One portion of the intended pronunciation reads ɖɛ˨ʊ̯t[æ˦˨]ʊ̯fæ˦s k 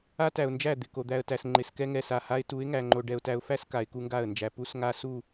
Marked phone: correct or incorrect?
incorrect: æ˨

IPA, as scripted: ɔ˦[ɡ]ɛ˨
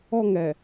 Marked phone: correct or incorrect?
incorrect: ŋ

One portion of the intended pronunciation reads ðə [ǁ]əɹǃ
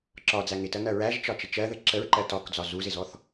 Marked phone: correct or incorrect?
correct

